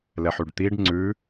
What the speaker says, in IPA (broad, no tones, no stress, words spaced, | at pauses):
lɛħyɖt̪iɖ ŋ͡ǀʉ